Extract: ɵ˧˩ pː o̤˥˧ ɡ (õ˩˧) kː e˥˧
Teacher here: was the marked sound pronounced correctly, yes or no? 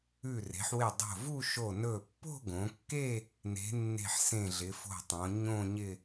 yes